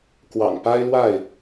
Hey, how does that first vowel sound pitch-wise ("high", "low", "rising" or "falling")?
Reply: low